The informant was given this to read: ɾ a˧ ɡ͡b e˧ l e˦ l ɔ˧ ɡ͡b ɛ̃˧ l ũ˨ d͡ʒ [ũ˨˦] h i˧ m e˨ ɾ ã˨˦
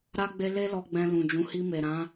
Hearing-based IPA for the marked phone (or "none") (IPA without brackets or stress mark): ũ˨˦